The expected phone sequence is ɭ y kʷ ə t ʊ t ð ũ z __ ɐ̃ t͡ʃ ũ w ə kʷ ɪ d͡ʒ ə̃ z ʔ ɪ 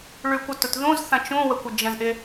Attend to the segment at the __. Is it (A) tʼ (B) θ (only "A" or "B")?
B